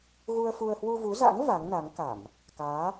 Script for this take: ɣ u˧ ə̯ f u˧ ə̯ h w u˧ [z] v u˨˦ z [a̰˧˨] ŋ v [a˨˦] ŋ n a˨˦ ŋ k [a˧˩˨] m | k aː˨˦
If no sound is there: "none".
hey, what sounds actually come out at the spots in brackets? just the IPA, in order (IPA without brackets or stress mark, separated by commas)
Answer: none, a̰˧˥, a˨˦, a˧˩˨